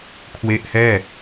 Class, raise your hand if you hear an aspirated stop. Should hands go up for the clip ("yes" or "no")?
yes